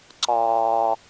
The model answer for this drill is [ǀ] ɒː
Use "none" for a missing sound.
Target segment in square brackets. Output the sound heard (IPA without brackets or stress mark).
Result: ǀ